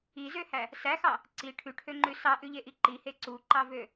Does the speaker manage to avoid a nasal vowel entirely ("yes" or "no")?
yes